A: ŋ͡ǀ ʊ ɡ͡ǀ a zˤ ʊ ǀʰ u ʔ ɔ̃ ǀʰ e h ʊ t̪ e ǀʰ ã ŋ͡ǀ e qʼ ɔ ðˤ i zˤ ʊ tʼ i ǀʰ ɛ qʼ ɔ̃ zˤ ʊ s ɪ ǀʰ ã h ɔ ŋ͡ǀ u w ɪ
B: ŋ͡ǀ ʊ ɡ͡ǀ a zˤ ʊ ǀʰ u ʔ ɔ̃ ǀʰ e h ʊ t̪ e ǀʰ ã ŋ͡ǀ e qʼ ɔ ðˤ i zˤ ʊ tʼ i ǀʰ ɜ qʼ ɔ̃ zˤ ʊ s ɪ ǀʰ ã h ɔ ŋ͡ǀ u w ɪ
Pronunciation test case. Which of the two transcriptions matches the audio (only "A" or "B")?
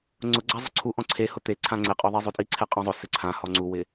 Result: A